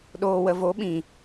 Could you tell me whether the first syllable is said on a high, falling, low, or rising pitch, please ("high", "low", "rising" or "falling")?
low